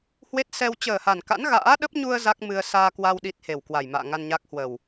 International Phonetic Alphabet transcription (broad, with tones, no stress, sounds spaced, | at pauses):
h w e˦˥ t̚ s ɛ˧ w t͡ɕ əː˨˩ h a˨˩ n k a̰˧˥ n ɣ a̰ː˧˥ ɗ ə˦˥ p̚ ɲ u˧ ə̯ z a˦˥ k̚ m ɨ˧ ə̯ s aː˧ k w a˧ w ɗ i˦˥ t̚ h e˨˩ w k w a˨˩ j m a̰ː˧˨ ŋ a˧ n ɲ a˦˥ k̚ h w ə˨˩ w